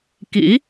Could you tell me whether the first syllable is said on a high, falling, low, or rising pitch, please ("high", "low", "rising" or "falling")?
rising